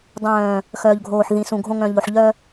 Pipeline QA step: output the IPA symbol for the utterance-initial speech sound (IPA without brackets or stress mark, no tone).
dˤ